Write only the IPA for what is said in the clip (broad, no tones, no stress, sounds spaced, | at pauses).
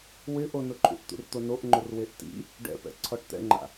w ɪ ʔ o n ʊ ǃʰ ṵ ʔ t̪ ṵ r t̪ o n o ʔ ŋ͡ǃ ʊ r w e ʔ t ḭ | ɖ ɛ̰ p ɛ̰ ǀʰ ɔ ʈ t̪ ɛ̰ ŋ͡ǃ a̰